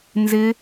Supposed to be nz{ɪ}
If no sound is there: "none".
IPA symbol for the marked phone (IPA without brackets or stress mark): ɪ